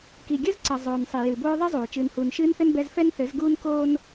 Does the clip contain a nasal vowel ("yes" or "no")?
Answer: no